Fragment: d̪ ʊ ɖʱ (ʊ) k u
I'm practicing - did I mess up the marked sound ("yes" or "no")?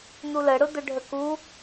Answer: yes